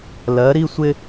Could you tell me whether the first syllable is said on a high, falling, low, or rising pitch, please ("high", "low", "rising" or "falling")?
rising